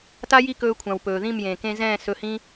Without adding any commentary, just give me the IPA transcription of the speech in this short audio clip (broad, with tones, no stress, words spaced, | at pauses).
ta˦ji˦ kɵː˧kʷʰã˨w pɵː˨ðĩ˦˨mjẽː˨ kẽ˧zɛ̃ː˦˨ sɵ˧hĩ˦